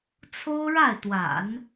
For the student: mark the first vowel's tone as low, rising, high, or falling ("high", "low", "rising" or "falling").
high